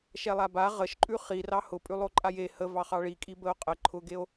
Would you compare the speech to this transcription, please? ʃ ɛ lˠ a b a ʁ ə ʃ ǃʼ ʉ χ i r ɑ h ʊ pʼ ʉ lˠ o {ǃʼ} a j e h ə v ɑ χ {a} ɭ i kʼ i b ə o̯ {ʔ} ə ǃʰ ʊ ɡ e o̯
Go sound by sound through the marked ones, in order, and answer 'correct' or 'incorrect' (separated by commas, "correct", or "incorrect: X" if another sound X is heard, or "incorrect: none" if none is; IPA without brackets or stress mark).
correct, incorrect: ɑ, incorrect: qʼ